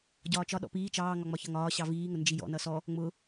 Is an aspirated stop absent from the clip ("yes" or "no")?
yes